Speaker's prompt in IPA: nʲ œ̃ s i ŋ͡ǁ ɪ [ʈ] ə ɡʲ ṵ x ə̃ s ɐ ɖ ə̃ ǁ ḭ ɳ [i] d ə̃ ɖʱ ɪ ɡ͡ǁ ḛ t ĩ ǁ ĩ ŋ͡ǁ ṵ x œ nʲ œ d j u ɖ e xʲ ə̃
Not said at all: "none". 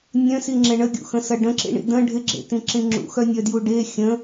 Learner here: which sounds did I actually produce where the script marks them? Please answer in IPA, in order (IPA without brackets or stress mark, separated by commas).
ɳ, ḭ